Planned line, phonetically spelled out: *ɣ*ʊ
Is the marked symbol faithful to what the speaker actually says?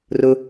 no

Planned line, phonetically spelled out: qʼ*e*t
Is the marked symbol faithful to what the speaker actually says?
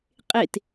yes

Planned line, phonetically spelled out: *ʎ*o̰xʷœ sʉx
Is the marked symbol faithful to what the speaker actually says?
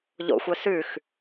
yes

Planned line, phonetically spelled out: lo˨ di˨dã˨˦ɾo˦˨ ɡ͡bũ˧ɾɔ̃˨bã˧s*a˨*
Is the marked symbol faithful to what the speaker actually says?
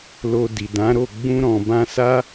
no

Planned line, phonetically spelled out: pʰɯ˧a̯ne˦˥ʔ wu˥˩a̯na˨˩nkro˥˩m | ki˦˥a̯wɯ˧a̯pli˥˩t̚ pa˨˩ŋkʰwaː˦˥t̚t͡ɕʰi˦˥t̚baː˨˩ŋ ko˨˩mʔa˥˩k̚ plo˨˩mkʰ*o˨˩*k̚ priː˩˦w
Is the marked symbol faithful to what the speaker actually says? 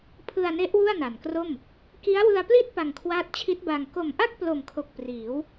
yes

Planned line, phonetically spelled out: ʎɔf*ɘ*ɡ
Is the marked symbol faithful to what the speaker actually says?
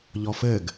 yes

